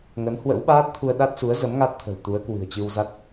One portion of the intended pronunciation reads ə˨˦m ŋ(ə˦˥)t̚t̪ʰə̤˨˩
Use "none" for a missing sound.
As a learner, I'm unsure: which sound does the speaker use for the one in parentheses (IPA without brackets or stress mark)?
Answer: a˦˥